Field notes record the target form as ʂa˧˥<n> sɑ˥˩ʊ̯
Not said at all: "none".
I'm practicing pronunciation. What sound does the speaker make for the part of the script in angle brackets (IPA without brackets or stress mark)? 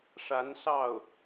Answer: n